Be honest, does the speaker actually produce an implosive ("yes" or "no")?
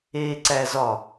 no